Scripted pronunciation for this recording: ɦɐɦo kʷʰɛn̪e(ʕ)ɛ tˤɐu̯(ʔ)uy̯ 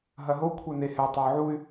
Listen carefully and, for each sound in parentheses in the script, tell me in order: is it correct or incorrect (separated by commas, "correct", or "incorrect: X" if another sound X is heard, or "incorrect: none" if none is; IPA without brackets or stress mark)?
incorrect: h, incorrect: ʕ